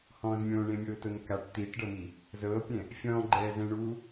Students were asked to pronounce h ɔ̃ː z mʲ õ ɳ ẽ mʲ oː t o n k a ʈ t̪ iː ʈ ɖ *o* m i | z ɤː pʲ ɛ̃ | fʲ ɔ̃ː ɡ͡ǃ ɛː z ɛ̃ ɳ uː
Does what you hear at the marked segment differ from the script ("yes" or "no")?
yes